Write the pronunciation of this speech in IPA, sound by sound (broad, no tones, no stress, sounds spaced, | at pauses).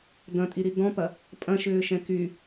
d ɐ̃ tʼ i ɾ i d ɔ̃ p ɐ | pʼ ɐ̃ ʃ ʏː ʃ ɛ̃ k y